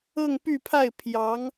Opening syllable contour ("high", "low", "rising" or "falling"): falling